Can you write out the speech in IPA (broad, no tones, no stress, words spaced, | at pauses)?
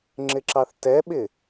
ŋ͡ǁɪǁɑθtɛɓɪ